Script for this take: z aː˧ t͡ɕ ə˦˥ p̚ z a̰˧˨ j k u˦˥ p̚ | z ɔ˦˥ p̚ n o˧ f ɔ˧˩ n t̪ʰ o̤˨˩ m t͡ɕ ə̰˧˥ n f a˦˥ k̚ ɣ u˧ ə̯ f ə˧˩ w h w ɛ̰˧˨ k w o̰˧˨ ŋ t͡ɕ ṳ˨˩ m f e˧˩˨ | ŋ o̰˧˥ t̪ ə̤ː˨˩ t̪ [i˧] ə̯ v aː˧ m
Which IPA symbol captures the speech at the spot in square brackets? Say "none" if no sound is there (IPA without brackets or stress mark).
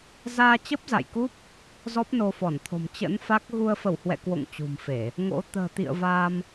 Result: ḭ˧˨